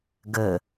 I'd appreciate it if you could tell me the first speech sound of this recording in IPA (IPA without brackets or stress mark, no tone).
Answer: ɡ